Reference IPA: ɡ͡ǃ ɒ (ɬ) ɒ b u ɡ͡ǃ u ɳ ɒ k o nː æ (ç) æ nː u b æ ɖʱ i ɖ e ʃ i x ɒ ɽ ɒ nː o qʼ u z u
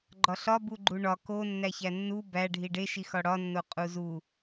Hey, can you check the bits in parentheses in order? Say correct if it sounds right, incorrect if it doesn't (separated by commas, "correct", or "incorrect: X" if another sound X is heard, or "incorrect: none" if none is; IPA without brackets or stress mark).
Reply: correct, correct